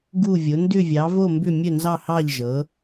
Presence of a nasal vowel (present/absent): absent